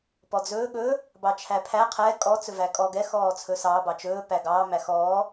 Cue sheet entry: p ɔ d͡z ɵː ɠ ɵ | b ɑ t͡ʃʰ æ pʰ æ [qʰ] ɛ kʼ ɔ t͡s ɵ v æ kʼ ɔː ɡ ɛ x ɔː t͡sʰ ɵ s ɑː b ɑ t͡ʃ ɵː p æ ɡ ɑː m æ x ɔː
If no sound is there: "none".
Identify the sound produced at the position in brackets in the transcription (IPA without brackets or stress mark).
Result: qʰ